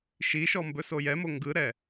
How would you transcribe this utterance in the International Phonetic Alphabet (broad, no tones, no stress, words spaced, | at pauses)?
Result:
ʃiʃɔ mbɵsojɛmo ŋɡɯɾɛ